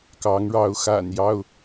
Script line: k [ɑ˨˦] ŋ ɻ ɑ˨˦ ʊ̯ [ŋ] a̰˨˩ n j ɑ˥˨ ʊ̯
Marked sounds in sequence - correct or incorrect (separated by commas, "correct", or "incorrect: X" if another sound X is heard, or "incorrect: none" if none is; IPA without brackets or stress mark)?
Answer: correct, incorrect: x